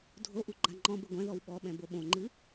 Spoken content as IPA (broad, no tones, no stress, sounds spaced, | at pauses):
dʱ o ʔ u ɡ͡ǃ a ŋ͡ǃ ɔ̃ b ɘ ɡʷ ɛ̃ ð ɔ w ɓ ɔ ɓ ɛ̃ b o ɓ õ ŋ͡ǃ ɨ